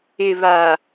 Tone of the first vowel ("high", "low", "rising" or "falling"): low